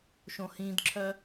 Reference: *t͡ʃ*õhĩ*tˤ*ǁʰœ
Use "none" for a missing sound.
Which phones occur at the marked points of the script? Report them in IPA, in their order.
ʃ, d

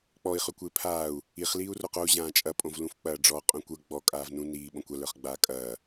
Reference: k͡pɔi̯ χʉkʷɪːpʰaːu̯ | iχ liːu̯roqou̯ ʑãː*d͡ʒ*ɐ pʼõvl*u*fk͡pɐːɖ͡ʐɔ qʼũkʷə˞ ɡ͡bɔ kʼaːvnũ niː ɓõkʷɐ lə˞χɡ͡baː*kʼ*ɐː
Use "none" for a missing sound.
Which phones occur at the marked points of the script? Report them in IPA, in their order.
t͡ʃʼ, ũ, kʼ

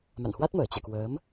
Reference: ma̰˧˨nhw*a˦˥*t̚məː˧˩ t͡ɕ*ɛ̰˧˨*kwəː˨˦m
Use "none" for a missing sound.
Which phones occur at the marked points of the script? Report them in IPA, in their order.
a˦˥, ɛ̰˧˨

